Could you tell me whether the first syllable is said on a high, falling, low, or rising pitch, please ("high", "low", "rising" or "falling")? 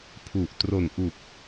low